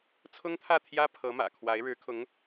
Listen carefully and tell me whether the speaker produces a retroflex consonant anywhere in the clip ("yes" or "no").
yes